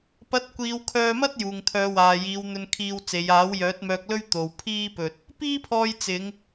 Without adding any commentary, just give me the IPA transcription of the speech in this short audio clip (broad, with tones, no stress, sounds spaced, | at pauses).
p ɐ˨˥ t̚ kʷ iː˨˧ w kʰ œː˧ m ɐ˥ t̚ j uː˨ ŋ t̪ʰ œː˨˧ w aː˨ j iː˨˧ w n̪ ɵ˧ n kʰ iː˧ w t͡s e˨˧ j aː˨˥ w j œː˨˥ t̚ m œː˧ k̚ l ɵ˥ ɥ t̪ o˨ w pʰ iː˥ p ɵ˧ t̚ | p iː˥ pʰ ɔː˧ j t͡s ɪ˨˧ ŋ